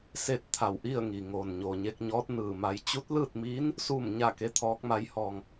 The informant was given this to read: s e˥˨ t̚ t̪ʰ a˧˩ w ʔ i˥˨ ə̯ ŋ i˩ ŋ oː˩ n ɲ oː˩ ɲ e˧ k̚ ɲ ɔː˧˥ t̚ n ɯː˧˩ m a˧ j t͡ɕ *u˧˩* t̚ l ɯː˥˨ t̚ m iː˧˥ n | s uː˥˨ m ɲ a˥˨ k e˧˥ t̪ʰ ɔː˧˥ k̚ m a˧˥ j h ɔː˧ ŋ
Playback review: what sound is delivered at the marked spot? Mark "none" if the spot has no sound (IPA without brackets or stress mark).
u˧˥